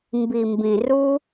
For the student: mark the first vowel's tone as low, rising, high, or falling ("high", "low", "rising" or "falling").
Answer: low